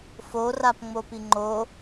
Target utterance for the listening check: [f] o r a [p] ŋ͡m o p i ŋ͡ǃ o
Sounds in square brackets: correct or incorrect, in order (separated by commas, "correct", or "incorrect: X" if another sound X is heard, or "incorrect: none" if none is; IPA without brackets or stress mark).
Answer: correct, correct